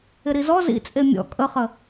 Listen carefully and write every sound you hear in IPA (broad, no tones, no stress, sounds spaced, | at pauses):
ɪ ɾ i z ɔ z ḭ t͡sʼ e mʲ ɔ̰ kʼ ə χ ə